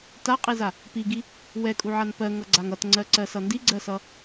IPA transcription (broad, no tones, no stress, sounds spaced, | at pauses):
t a qʼ i z a | p i ɡ i | w ɛ kʼ u ʕ a n p ɜ ŋ ʌ ɡ͡ǀ a ŋ ʌ t ŋ͡ǀ ɜ ǀ ɜ s ʌ n d i ɡ͡ǀ ɜ s ʌ